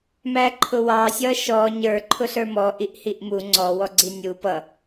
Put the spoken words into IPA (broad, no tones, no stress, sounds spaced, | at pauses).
m æ ǃʰ ʊ w ɑ sʲ ʌ ʃ ɔ ɲ ə˞ ǃʰ ʊ ɬ ə˞ m ɔ ʔ i ʔ h i ʔ m u ŋ͡ǀ ɔ w ɔ ɡ͡ǀ i nʲ u p ʌ